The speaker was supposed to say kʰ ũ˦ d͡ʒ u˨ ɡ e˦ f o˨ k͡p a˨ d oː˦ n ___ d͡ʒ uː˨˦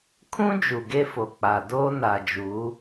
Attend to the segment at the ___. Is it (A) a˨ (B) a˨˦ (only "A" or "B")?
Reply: A